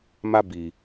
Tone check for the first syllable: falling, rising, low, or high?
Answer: high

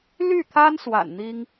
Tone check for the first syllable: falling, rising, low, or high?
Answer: falling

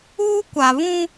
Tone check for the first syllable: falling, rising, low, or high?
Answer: high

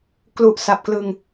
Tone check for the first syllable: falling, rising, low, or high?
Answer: low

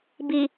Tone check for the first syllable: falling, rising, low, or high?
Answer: low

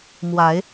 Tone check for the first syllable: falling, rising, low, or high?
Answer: rising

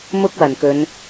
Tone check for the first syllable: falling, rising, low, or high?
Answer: high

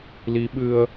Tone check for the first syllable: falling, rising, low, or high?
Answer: rising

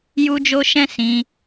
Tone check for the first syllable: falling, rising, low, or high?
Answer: high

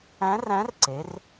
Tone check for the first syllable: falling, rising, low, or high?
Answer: rising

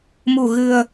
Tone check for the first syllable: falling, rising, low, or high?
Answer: low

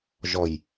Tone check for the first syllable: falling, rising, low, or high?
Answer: low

